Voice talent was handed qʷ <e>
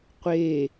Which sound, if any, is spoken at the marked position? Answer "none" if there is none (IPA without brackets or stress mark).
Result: e